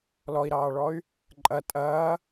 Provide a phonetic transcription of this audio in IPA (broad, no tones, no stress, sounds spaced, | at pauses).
l ɔ i̯ ɾ ɑː ɭ ɔ y̯ | ǃʼ ɐ tʼ ɐː